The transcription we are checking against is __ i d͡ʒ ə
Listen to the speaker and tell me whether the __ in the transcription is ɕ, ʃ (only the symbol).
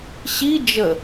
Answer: ɕ